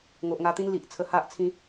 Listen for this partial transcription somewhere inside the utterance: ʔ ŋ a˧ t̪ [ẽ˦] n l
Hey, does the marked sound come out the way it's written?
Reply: no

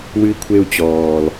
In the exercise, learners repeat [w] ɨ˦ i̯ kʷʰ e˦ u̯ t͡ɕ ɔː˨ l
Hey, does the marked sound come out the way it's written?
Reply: yes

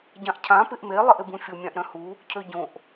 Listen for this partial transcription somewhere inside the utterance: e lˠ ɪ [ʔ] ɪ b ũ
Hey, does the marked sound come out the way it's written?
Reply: yes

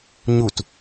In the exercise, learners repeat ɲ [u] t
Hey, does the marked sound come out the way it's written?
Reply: yes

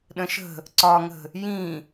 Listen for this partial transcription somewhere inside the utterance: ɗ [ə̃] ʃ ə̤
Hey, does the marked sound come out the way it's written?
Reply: yes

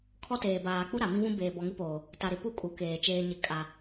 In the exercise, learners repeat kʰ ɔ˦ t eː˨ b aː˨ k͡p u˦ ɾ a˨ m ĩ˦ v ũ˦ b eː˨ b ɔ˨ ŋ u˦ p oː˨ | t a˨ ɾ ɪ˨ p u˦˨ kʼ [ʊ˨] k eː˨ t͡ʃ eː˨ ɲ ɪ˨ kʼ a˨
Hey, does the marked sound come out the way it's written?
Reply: no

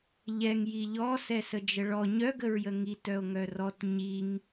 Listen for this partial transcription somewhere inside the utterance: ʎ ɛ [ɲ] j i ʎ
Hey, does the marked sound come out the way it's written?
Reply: no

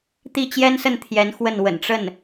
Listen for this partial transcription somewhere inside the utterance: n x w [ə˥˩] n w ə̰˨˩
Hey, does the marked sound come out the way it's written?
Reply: yes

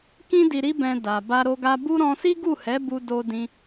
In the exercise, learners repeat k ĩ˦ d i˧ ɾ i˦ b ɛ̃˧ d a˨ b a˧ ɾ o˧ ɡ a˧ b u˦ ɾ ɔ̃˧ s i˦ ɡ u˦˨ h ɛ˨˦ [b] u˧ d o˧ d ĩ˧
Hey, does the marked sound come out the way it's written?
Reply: yes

